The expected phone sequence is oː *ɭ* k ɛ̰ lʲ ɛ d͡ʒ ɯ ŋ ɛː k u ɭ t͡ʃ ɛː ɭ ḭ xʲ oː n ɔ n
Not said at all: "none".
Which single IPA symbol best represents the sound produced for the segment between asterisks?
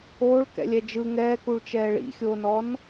ɭ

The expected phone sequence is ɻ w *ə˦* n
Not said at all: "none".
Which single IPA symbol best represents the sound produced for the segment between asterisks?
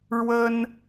ə˦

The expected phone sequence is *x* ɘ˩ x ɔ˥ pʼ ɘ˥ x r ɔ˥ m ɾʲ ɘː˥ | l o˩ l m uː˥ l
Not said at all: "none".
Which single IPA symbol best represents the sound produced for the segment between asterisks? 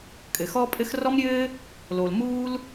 kʼ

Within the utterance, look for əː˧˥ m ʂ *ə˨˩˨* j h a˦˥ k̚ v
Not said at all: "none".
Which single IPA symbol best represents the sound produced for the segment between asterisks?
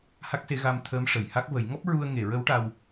ə˨˩˨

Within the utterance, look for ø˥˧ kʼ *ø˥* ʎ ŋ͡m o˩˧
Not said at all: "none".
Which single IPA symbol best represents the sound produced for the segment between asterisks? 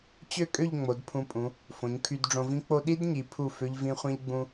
ø˥˧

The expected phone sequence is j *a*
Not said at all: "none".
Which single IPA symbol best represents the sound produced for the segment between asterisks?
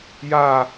aː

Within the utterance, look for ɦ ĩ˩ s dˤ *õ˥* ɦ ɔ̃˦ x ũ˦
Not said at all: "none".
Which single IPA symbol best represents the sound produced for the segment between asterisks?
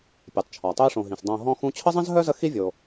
õ˨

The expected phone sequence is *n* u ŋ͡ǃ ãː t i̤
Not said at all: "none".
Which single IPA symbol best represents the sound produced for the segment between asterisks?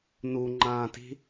n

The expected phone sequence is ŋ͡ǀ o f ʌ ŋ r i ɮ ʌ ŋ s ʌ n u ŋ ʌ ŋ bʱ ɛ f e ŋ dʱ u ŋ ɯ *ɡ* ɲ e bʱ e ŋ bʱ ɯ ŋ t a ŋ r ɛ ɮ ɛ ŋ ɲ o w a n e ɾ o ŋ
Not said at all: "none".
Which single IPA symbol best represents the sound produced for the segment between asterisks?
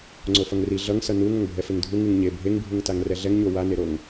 ŋ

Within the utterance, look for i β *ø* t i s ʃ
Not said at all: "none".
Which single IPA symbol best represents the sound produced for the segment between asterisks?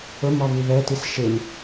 ɛ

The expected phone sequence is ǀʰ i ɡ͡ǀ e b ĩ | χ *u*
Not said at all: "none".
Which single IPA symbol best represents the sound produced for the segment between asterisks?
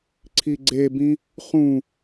ũ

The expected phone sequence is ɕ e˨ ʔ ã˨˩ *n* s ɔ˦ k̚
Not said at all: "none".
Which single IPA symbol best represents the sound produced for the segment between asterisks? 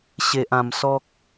m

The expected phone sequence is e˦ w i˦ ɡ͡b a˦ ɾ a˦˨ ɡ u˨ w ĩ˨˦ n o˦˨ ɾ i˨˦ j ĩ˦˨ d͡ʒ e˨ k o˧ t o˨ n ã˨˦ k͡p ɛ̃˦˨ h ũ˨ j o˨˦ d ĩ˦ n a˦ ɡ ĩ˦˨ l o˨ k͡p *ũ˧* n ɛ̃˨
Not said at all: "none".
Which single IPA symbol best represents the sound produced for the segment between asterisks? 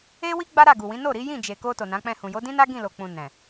ũ˨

